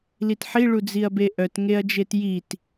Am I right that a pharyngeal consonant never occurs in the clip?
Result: no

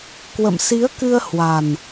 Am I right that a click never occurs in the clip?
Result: yes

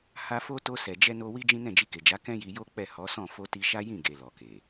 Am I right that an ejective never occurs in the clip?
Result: yes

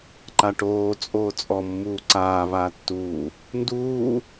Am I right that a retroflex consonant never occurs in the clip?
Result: no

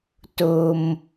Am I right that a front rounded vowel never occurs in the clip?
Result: yes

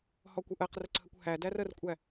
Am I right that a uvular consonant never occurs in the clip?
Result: no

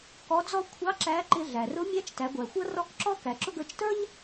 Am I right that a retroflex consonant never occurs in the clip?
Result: yes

